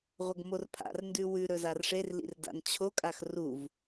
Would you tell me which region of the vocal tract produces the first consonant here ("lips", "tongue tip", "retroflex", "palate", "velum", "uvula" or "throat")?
uvula